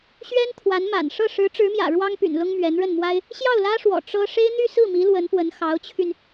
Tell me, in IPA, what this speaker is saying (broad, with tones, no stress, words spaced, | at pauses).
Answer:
ɕɥɛ˥n t̪ʰwa˧˥n ma̰˨˩n ʂɤ˥˩ ʂɻ̩˧˥ʈ͡ʂɻ̩˧˥mjä̰˨˩ ɻwɑ˥ŋpy̰˨˩n lʊ˥ŋmɥɛ˧˥nɻə˥˩nmwa˥ɪ̯ | ɕjɑ˥˩ʊ̯lä˥ʂwɔ̰˨˩ ʈ͡ʂɤ˥ ʂe˥ɪ̯n̪y˥˧sɹ̩˥˩mi˧˥ lwə˧˥npwə˧˥n xɑ˧˥ʊ̯t͡ɕʰy˧n